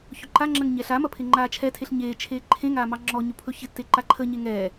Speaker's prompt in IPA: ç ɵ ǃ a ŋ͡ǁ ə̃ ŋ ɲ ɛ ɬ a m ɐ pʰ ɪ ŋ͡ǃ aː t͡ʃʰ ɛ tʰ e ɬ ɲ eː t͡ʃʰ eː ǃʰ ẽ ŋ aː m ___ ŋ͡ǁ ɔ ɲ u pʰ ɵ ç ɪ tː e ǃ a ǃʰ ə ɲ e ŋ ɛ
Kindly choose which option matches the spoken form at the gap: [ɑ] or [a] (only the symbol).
ɑ